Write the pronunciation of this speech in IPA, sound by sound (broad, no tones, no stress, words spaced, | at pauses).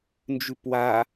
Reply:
nd͡ʒʉpwa